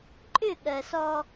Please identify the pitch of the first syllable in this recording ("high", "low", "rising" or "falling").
falling